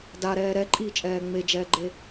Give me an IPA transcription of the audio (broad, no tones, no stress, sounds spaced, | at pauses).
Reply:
d a ɾ ɛː ɾ ɛ ǃʼ iː t͡ʃʼ ɛː ŋ͡m e d͡ʒ ɛː ɡ͡ǃ e